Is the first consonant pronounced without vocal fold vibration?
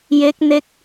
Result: no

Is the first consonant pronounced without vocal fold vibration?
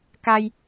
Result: yes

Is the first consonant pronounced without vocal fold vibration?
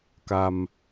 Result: yes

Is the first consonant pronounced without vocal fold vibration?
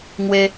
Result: no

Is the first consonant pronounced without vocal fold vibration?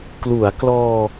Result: yes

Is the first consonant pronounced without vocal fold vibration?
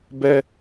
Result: no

